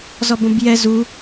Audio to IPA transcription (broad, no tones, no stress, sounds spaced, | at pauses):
z ɔ b õ b j ɛ z u